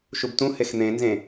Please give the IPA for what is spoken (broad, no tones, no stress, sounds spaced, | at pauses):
ʃ u b t ũ h e x n̪ ẽ n z ẽ